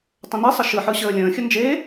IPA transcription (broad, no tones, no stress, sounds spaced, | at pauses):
tˤ ə̃ n i sˤ ə ʃ ɯ ħ ɯ ɕ əː lʲ ə̃ː xʲ ə n d͡ʒ e